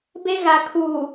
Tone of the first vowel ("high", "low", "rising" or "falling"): high